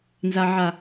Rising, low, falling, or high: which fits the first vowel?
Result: low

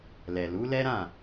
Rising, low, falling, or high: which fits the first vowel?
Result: low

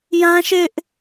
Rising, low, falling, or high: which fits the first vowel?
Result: high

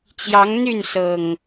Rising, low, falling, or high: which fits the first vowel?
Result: rising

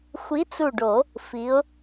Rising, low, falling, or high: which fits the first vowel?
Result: rising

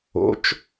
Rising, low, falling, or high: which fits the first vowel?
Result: rising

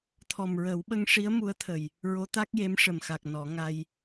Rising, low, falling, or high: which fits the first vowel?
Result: low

